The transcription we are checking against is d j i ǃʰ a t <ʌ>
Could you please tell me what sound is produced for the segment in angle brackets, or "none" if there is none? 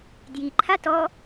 ɔ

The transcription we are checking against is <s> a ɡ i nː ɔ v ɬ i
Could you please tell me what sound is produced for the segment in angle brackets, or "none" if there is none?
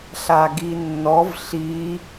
ɬ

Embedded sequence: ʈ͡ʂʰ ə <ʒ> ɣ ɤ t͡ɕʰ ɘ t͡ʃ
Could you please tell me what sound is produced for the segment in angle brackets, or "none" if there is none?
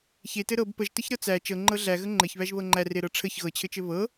ç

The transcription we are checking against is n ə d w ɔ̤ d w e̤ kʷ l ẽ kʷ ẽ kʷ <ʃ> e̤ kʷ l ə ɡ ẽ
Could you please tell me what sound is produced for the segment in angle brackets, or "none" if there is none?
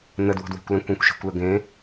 ʃ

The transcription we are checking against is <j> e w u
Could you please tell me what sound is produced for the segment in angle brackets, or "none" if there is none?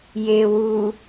j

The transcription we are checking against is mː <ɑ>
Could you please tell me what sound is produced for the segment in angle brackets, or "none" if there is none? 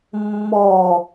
ɔ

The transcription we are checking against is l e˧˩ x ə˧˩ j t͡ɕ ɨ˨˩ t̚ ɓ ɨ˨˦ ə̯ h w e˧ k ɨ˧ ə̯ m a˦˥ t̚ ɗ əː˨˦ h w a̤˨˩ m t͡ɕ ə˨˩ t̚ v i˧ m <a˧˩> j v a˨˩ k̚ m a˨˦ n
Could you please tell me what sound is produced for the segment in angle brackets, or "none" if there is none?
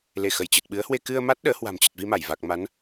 a˧˩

